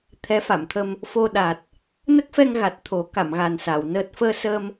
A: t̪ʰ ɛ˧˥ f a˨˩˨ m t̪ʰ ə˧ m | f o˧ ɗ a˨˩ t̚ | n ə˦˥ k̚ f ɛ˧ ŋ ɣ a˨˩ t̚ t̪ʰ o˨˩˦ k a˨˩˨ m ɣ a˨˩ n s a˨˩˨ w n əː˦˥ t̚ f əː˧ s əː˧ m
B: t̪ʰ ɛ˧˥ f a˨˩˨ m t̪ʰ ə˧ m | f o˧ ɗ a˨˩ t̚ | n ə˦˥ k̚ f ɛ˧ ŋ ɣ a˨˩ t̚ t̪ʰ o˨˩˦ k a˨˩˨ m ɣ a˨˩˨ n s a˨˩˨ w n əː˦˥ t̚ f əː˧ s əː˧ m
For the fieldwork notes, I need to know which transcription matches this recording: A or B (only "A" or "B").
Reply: A